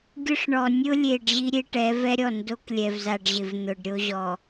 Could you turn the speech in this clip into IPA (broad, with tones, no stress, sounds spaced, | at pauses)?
ɡʲ ʊ˦ ʂ ɳ ɔ˨ nʲ ʊ˦ lʲ e˨ ɖ ʑ i˦ ɾʲ e˦ ʈ ɛ˨˦ v ɛ˦ ɾʲ ɔ˦˨ n d o˦ k lʲ ɛ˨ v z a˨ ɖ ʑ ɪ˨ v n̪ ʊ˨ ɖ ɾʲ o˦ ʑ ɔ˨